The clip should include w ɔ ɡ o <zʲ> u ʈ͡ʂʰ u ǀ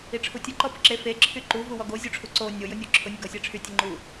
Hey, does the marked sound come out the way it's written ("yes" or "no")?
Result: yes